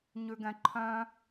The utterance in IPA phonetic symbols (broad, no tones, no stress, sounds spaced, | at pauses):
ɲ ʉ ɡ ɛ̃ ǃʰ œ̃